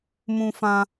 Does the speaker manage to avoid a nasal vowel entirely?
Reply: no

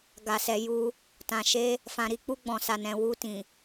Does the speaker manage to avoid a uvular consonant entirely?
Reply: yes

